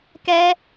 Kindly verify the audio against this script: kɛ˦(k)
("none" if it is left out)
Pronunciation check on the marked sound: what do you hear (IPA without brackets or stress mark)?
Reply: none